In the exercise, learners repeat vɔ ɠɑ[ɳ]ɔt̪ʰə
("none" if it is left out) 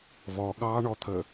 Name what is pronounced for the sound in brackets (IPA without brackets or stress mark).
ɳ